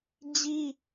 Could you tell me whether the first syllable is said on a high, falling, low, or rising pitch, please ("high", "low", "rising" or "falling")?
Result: high